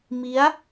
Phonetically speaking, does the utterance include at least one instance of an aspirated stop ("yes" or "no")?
no